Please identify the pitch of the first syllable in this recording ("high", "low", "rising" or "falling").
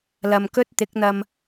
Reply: low